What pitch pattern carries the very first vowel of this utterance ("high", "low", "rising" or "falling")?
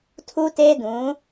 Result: high